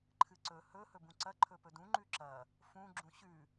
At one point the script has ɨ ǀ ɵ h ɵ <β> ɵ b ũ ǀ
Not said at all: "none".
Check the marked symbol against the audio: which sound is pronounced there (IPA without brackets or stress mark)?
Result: h